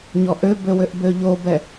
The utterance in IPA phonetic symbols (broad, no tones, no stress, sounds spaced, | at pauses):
ɲ ɔ ʔ ø b ø w ø ʔ b ø ʎ o b ɛ